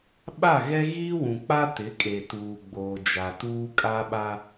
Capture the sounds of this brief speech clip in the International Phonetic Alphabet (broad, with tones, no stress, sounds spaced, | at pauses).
ɓ a˦˨ ɣ ɛ˦ ɣ iː˦ w ũ˨ k͡p a˦ t ɪ˨˦ kʼ e˨ t uː˨ ɡ͡b oː˨ d͡ʒ a˨ t uː˦ kʼ a˦ ɓ a˦